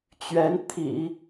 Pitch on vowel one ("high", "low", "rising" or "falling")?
rising